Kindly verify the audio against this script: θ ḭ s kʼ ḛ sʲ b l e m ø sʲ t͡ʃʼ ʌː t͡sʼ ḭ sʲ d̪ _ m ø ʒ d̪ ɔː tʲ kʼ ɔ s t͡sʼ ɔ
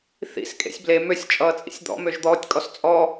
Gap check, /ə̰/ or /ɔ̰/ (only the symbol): ɔ̰